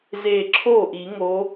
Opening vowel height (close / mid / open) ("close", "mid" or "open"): mid